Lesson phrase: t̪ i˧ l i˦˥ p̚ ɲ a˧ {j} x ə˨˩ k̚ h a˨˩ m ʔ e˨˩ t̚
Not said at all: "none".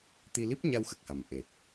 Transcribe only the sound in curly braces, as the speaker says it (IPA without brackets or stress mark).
w